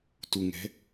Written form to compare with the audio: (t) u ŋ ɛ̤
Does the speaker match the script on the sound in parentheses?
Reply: yes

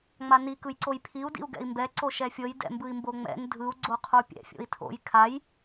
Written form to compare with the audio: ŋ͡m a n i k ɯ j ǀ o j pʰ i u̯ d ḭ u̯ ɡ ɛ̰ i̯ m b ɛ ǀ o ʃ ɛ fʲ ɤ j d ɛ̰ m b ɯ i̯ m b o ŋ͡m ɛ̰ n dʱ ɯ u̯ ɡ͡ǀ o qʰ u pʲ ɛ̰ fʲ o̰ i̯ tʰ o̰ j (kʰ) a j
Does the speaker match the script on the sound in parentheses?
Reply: yes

